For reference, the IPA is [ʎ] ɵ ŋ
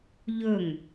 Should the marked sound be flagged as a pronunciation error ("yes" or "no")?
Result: no